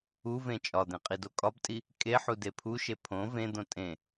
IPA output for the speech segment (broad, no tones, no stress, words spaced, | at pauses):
uvẽ t͡ʃʼɒd̪ẽ qʼidokʼɒbtʼi | kʼeħu depʰuʃe pʰõ vẽd̪õ tʼẽ